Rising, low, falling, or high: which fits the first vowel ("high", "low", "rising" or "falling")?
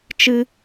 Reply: high